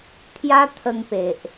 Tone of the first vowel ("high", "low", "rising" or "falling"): high